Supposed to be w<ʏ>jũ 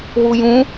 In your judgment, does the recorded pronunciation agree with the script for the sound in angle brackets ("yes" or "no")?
no